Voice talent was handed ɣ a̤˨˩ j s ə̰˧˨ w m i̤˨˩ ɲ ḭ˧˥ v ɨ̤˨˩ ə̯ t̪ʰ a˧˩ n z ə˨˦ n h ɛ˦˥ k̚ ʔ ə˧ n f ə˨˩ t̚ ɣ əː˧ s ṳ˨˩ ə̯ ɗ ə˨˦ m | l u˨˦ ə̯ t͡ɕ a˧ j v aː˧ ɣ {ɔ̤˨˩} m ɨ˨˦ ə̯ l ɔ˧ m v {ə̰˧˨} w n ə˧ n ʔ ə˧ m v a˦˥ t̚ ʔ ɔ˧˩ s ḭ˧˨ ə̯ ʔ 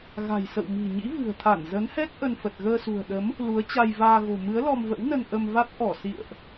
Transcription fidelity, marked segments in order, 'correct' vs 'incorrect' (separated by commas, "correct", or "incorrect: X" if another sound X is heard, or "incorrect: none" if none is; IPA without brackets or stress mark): incorrect: o̤˨˩, incorrect: ə̰˧˥